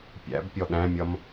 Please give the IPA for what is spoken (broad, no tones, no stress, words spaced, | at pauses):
pʲæ̰bpʲɔ ɗæ̃mʲʌm